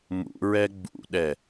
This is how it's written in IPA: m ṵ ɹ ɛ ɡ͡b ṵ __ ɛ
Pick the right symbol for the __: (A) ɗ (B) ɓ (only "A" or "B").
A